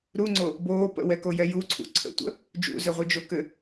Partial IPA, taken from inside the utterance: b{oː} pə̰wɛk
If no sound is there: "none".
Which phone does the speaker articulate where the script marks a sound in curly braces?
oː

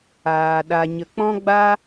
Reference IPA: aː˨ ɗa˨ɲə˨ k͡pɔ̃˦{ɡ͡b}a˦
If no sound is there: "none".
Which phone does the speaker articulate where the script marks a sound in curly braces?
ɡ͡b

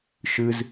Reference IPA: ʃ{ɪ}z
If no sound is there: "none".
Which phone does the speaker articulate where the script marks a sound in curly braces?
ɨ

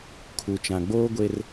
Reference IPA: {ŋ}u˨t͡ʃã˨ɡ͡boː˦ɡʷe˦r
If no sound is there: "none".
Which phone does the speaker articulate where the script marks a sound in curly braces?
kʰ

